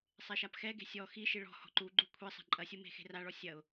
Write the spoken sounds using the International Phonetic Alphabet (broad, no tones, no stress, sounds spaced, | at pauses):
sˤ e ʃ a p x ɛ ɡ e̤ sʲ ɔ x i ʃ i ɭ ɔ̤ h ɔ̤ ǃ u ɡ͡ǃ u kʷʰ i sˤ ɛ̤ ǃʼ ɐ sʲ u m e̤ x e̤ r a ɭ ɔ sʲ ɐ ʊ̯